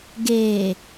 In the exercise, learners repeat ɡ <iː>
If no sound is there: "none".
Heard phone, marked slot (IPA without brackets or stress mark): eː